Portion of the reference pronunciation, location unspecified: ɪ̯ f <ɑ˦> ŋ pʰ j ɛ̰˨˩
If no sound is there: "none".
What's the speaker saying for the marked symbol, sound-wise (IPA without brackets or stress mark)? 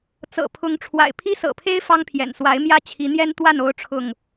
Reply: ɑ˦